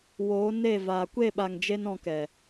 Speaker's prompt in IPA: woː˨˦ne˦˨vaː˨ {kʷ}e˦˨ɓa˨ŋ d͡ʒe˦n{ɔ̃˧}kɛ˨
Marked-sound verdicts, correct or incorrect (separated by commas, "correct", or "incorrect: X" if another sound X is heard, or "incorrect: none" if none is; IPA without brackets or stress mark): correct, correct